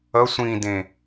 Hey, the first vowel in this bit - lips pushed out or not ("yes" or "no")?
no